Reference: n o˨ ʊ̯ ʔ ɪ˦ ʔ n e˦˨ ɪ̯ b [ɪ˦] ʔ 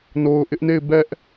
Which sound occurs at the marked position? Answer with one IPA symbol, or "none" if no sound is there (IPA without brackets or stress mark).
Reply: ɛ˦